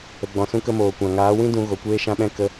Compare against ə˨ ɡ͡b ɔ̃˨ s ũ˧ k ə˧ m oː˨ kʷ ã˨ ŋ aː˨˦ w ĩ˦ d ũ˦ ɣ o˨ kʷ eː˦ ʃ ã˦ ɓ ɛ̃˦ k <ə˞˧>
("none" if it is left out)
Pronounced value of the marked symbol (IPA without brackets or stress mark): ə˧